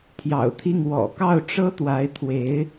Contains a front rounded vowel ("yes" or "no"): no